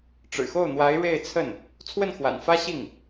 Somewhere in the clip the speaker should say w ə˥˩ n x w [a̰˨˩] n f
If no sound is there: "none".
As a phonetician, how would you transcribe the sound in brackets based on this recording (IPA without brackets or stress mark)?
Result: a̰˨˩